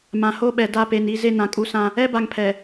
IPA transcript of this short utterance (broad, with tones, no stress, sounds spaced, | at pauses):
m ã˨ h o˦ ɓ ɛ˨ d a˦˨ p e˨ n i˦ z e˦ n ã˨ kʼ u˦ s ã˦ | ɛ˦ b a˨ ŋ pʰ ɛ˨